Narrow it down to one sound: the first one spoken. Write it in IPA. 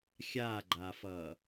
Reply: xʲ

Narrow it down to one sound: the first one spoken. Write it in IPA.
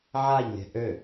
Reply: ʕ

